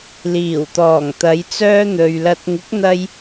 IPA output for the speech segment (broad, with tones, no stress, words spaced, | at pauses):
liː˨˩wt̪ɔː˨˩ŋt̪ɐ˨˧j t͡sœː˥n̪ɵ˨ɥlɐ˧t̚ ŋɪ˨˥k̚n̪ɐ˧j